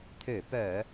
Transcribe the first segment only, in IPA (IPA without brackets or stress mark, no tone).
t̪ʰ